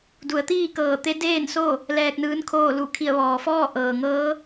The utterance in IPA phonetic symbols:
du˩˧ə̯t̪iː˥˨ kɤː˧˩t̪e˧˥ deː˥˨nso˥˨ | lɛː˧k̚nɯː˧˥nkʰoː˥˨ lu˧˩ kʰi˧˩ə̯ʋɔː˩fɔː˥˨ ʔɤː˩ŋɤː˧˥

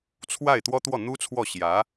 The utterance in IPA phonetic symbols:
t͡sʰwa˥˩ɪ̯t̪wɔ˥ t̪wɔ˥˩n̪u˥t͡sʰwɔ˥˩ɕjä˧˥

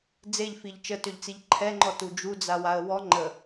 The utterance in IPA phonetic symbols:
d͡zeʎfiʎ t͡ʃətøʎt͡siʎ ǃʰɛŋ͡ǃɔtu d͡ʒud͡zawaə̯ wɔ ŋ͡ǃə

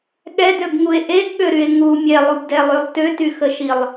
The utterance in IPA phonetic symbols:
ɠɛdøbŋue̯ ʔeɡɠøɾye̯ ŋu mʲɛlˠubdɛlˠylˠ tøtyxəʃilˠ

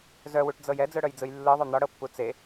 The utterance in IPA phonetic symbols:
zœwuʈd͡zɤj ɛd͡zœɽœjd͡zɯj lːɯðˤœ n̪ɒɽɤpːu t͡se

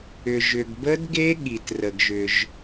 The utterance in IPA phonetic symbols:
ʏ˩ʒʏ˩ɡ bə˦˥dɡe˦˥ ɠi˩trə˩ɡʒʏ˩ʒ

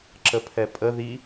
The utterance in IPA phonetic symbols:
ǁəpʰɛpʼə ði

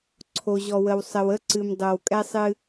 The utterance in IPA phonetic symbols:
ǀʰo˨ʑɔ˨wə˨w sˤə˨wə˦ǀɨ˨m dˤo˨wkʼɛ˦sˤɨ˦

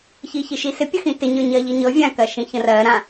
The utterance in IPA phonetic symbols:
çiçiʃisɪ pʲəxĩtɪ ɲə˞ɲɜʎiɲɤ vʲã kɜʃĩçə̃rɜ ɾã

